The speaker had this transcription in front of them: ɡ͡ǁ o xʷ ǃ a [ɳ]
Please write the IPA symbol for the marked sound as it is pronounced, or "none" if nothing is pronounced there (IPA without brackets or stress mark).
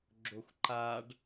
ɖ